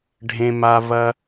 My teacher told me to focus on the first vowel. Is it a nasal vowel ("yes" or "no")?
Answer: yes